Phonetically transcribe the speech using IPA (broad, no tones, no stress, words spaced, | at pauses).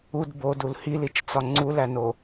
ud bodul hilit͡ʃt͡sɒ ŋ͡ǀulæno